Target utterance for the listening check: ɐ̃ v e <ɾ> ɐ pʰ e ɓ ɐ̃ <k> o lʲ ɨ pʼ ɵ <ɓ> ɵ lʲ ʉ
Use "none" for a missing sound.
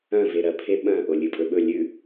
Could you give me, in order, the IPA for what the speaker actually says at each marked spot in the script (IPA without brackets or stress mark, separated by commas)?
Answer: ɾ, ʔ, ɓ